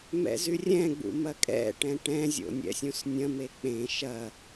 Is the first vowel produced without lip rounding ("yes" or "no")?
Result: yes